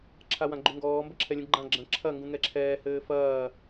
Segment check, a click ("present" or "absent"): present